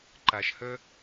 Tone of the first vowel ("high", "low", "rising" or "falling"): low